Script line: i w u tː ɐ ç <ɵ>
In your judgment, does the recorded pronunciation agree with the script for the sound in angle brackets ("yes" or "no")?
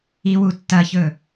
yes